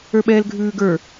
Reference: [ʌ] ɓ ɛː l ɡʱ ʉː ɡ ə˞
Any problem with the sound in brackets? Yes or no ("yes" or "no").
yes